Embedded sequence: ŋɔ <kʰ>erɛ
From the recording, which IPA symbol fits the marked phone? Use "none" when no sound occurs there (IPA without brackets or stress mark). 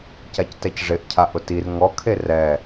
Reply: kʰ